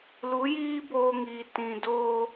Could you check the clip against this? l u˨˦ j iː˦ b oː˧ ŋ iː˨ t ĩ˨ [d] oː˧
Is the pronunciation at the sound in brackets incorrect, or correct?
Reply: correct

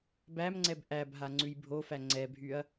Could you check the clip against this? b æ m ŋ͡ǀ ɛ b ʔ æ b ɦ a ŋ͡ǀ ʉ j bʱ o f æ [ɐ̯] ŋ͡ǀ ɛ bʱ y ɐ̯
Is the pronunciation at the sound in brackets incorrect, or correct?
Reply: incorrect: none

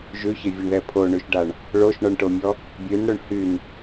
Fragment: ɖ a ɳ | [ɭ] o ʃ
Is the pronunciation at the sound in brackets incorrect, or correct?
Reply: correct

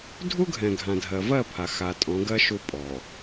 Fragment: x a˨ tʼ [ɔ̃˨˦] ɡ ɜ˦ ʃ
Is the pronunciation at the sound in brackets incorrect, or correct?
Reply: correct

